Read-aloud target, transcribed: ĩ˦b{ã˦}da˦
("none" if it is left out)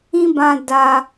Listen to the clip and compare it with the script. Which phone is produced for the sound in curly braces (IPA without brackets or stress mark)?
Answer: ã˦